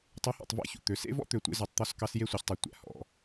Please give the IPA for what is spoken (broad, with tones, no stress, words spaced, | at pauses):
tˤʉ˨˦hɔ̰˨tˤvæ̰˦ çṵ˨t̪ø˨˦ sḛ˦vɔ̰˦t̪ø˨ tʷḛ˦zu˨tˤt̪ɔ˦skɑ˦s je˦sʷœ˨çtˤi˨ tʷæ̰˨hɔ̰˨